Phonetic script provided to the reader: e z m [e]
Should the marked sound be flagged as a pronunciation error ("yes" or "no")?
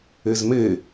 no